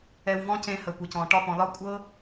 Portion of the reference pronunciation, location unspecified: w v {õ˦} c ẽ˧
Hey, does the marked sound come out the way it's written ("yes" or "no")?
no